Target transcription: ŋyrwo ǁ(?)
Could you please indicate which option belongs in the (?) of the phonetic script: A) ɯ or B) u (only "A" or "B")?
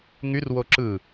A